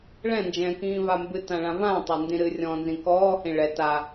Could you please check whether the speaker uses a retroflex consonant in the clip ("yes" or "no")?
yes